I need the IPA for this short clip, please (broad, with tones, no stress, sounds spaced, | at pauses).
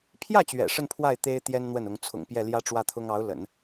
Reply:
pʰ j ä˥˩ t͡ɕ ɥ ɛ̰˨˩ ʂ ə˥˧ n pʰ w a˥˩ ɪ̯ t̪ e˥ ɪ̯ t̪ j ɛ˥ n n̪ w ə˥˩ n ʊ˧˥ ŋ t͡sʰ ʊ̰˨˩ ŋ p j ɛ˥˩ l j ä˥ ʈ͡ʂ w ä˥˩ t̪ʰ ʊ˥ ŋ ɑ˧˥ ʊ̯ l ə̰˨˩˦ n